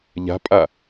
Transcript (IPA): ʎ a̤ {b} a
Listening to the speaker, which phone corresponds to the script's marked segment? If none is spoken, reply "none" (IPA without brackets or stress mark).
pʼ